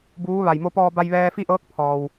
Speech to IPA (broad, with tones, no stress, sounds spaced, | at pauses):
b uː˧˥ ʋ a˩ j m o˧ p ɔː˧ b a˧ j ʋ ɛː˧ f i˥˨ ʔ ɤː˧˥ k̚ pʰ ɔː˩ w